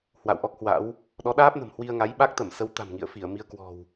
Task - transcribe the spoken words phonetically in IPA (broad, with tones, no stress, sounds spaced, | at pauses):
h w a̰˧˨ w ʔ ɔ˦˥ k̚ h w a̰˧˥ w | ɗ ɔ˨˦ ɗ aː˦˥ p̚ n ə̤˨˩ m h w i˧ ə̯ ŋ a˨˦ j ɓ a˦˥ k̚ t̪ ə˧˩ m s ə˨˦ w t̪ a̤˨˩ m ŋ ḭ˧˨ ə̯ f i˧˩ ə̯ m i˧ ə̯ k w ɔ̤˨˩ w